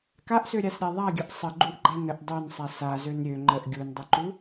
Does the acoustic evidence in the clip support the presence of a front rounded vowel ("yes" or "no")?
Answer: yes